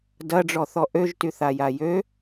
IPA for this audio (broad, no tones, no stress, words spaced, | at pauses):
dɐɖ͡ʐɔθɔ ʔøʒty θajajø